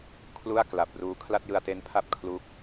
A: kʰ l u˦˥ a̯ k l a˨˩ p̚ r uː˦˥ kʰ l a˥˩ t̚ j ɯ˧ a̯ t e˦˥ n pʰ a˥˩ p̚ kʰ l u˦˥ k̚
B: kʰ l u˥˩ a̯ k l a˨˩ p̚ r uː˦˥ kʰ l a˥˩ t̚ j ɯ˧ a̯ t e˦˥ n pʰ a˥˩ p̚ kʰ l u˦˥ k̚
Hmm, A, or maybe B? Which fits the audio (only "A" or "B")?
B